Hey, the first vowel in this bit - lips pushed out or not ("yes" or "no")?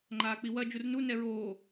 no